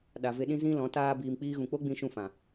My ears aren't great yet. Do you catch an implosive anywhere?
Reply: yes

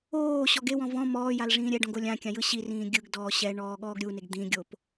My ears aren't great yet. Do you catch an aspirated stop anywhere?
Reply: no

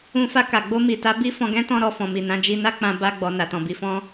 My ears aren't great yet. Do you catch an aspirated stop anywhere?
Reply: no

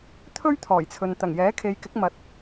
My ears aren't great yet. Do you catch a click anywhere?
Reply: no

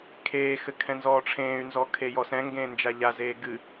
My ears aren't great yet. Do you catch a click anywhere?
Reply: no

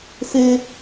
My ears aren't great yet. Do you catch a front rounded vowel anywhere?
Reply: no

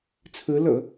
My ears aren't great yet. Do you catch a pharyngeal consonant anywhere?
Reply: no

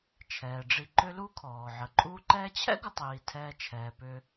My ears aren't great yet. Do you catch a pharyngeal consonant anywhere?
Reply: yes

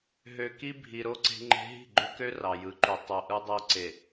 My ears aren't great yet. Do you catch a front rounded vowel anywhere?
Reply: yes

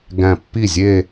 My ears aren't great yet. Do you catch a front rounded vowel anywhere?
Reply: no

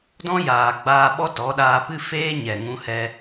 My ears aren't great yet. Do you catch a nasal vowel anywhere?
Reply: yes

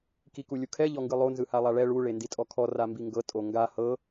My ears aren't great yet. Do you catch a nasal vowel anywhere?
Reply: no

